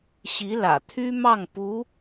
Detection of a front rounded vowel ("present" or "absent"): present